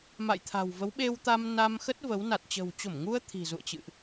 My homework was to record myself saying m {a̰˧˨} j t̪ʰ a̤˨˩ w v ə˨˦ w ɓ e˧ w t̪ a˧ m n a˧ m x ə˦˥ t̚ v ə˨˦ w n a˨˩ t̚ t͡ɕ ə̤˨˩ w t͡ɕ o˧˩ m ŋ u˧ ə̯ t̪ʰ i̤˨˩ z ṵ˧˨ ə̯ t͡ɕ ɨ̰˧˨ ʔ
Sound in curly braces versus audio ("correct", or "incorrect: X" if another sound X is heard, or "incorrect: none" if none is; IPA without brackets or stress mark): correct